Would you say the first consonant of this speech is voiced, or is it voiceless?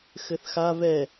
voiceless